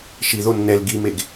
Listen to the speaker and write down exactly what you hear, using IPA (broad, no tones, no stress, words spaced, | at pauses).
ʃi ðo nːɛl ɡimeɡ